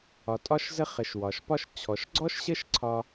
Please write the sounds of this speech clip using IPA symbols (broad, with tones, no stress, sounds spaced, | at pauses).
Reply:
ɒ˩ tʼ ɒ˧ ʃ z ə˧ χ ə˩ ʃ w ɒ˩ ʃ p ɒ˧ ʃ t͡ɕʰ ɔ˩ ʃ ɡ͡ǀ ɔ˥ ʃ ɕ ə˥ ʃ ǀʰ ɒ˧